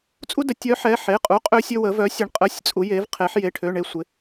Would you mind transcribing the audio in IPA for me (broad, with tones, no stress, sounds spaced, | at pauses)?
t͡sʼ u˥ d ə˧˥ tʲ œ˧˥ ħ ɛ˧˥˧ ħ e˧˥˧ qʼ u˧˥˧ qʼ ø˥ sʲ ø˥ w ə˧˥ v œ˧˥ sʲ ə˧˥ ɳ qʼ ə˧˥˧ sʲ t͡sʼ u˧˥ j e˧˥ v qʰ e˧˥ ħ j e˧˥˧ ʈʰ ø˧˥˧ ɳ e˥ sʷ ɪ˧˥